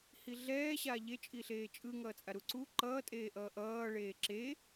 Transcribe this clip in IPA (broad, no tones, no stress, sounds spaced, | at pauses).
h i ɮ ɛː ɕ a ʎ e t͡ʃʼ i ɬ eː t͡ʃʼ ɯ ŋ ʌː t͡sʼ a ɾ u ǀ u ǃ ʌː tʼ eː ʔ ʌː ʔ ʌː ɭ eː ǁ e